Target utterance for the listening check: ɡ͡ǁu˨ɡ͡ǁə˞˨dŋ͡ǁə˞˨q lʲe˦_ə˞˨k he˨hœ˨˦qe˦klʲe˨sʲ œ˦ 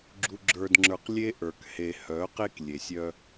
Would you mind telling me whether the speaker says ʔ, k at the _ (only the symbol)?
ʔ